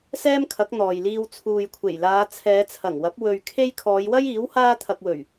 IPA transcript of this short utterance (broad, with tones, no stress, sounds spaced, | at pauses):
s ɛː˥ m kʰ ɐ˨˥ k̚ n̪ ɔː˨ j l iː˧ w t͡sʰ uː˨ j kʷʰ e˨˩ j l aː˨˧ t͡sʰ ɛː˨˧ t͡sʰ ɐ˨˩ ŋ w ɐ˨˥ p̚ w ɵ˨ ɥ kʰ e˧ j kʰ ɔː˨˧ j w ɐ˥ j iː˨˥ w h aː˥ t̪ʰ ɐ˧ k̚ w ɵ˨˩ ɥ